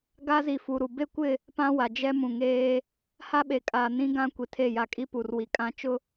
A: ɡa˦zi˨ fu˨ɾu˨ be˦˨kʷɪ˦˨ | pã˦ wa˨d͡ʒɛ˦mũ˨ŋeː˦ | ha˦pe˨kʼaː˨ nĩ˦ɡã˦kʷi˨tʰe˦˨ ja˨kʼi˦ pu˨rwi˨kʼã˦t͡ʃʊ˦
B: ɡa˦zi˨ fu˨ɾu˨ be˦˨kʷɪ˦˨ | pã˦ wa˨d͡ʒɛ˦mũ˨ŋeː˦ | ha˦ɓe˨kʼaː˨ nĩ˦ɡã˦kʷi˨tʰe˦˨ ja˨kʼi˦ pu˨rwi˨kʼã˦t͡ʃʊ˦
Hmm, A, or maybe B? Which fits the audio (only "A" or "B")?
B